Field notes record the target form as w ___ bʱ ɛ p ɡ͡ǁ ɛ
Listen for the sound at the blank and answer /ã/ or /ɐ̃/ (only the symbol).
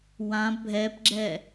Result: ã